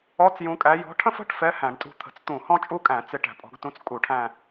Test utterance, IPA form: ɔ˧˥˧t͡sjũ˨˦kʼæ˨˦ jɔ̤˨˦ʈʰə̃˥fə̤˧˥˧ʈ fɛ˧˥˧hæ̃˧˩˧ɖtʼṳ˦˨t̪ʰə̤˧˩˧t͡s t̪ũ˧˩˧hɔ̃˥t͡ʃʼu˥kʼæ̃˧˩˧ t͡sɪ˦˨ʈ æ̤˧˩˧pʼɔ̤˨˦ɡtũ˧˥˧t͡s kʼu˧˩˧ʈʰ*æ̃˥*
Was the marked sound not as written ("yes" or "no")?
yes